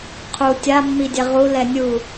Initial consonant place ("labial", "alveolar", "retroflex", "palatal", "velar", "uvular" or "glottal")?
uvular